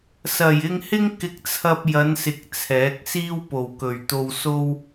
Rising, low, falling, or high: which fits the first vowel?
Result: low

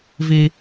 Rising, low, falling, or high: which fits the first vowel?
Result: high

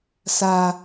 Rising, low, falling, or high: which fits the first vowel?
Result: high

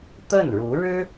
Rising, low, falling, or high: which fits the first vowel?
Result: falling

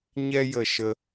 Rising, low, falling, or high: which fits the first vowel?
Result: high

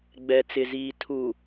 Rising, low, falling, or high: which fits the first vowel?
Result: low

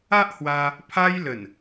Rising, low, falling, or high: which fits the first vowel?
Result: high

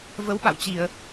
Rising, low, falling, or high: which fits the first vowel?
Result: rising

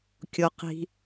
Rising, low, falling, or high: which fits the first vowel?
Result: low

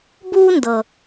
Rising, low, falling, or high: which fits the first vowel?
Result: high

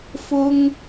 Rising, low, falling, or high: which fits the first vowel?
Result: high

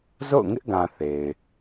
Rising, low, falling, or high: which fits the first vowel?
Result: falling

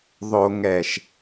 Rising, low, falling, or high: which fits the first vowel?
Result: low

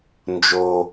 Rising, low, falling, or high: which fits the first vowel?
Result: high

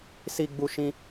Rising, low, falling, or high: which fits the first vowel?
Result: high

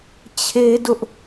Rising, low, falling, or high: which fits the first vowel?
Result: high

